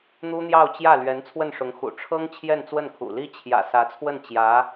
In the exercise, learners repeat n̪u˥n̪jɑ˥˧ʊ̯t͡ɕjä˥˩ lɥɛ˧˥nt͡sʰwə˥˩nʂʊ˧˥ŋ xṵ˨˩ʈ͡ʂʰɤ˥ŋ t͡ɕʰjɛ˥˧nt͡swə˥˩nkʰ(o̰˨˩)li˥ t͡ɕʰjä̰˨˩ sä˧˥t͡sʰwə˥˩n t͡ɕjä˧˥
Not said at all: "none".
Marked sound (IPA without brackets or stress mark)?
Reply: ṵ˨˩